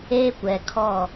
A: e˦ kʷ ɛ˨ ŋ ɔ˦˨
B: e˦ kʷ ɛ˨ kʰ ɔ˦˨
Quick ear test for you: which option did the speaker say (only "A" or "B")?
B